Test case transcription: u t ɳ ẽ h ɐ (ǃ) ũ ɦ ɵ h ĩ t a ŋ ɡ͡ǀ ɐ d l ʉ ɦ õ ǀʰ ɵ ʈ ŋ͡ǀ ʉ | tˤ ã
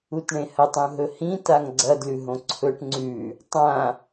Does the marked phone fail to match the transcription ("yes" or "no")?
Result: yes